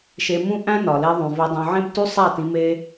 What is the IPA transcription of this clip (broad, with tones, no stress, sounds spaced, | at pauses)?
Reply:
ʃ e˧ m ũ˦ ʔ æ̃˦ n ɒ˨ l e˧ ðˤ ũ˨ v e˧ dˤ õ˧ ʕ ẽ˦ b t u˦ sˤ æ˦˨ t ĩ˧ m e˦